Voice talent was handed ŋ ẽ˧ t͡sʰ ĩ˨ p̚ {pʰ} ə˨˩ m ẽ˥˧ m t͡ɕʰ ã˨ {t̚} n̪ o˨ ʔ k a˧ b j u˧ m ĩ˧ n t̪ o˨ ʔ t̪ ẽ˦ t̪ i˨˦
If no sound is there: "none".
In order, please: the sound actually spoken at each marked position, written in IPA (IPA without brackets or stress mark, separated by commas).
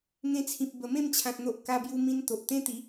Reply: b, t̚